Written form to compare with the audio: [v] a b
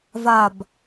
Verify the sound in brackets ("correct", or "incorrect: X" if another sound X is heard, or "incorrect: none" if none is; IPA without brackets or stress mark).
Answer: correct